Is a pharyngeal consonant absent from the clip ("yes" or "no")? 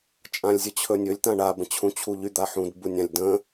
no